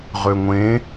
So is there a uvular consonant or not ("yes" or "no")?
yes